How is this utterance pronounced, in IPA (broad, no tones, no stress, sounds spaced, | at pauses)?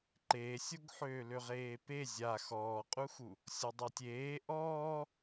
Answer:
ǃ eː sʲ o ɡ ħ øː l ø ʁ eː p e zʲ a x ɔː qʼ u x u | sʲ ɔ dˤ a tʲ eː ʔ ɔː